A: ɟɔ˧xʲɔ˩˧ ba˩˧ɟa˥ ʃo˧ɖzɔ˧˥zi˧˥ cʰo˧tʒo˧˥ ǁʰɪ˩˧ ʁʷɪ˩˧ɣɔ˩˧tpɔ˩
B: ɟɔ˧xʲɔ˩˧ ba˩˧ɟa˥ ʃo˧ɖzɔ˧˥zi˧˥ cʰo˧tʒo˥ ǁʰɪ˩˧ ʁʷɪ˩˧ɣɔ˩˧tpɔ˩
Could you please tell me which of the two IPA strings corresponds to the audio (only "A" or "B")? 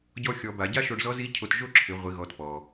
B